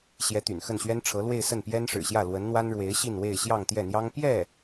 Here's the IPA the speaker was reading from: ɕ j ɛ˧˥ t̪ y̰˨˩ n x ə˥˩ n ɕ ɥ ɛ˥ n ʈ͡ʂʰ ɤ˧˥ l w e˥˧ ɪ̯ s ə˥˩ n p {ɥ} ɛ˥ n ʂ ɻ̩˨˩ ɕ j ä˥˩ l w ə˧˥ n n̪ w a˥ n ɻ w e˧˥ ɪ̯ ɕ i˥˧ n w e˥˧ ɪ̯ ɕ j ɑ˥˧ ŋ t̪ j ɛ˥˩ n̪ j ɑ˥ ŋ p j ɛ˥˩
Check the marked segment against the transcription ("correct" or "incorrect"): incorrect